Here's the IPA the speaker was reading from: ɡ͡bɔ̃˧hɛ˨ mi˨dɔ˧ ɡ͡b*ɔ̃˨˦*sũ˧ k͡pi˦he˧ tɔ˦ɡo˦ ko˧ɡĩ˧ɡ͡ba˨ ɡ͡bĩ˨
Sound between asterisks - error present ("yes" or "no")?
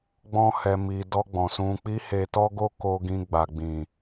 yes